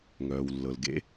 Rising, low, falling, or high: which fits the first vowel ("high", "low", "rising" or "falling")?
low